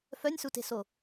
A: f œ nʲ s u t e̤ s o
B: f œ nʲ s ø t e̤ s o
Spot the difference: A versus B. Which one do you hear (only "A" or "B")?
A